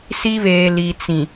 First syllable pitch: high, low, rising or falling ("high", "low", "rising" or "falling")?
high